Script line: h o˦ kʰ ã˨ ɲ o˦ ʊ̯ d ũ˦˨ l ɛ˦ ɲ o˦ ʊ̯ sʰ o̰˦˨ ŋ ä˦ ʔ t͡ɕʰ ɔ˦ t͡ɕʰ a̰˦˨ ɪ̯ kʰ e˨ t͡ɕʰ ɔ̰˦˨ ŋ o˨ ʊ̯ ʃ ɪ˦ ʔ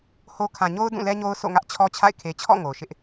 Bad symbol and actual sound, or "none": none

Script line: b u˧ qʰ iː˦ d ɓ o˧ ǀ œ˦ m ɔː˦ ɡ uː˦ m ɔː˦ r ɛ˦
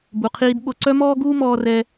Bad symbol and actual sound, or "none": none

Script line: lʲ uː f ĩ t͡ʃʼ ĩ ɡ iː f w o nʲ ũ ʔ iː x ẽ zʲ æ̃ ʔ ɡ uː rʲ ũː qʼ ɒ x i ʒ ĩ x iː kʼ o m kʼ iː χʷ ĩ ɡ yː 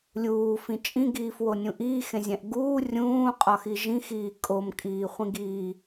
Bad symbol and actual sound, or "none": yː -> iː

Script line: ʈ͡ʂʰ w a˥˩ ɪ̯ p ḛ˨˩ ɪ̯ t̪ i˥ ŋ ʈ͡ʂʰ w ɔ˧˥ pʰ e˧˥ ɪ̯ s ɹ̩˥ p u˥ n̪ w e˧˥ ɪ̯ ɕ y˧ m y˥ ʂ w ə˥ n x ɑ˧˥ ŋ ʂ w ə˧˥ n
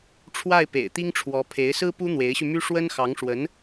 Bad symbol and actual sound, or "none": none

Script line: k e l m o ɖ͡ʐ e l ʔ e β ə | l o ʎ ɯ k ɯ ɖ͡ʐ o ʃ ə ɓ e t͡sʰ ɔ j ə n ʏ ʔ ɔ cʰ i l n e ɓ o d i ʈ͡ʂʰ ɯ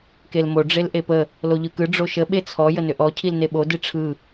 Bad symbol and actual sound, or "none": β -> p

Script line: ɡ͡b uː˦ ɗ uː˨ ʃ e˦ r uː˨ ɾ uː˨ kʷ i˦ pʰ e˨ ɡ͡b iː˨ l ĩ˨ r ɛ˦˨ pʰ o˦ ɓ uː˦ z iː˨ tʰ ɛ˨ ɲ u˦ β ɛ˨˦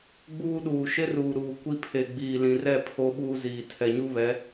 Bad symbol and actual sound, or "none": none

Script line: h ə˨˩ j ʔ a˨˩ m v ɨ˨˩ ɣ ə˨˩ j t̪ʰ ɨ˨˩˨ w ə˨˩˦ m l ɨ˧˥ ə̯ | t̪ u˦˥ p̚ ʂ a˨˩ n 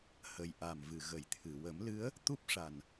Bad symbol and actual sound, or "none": none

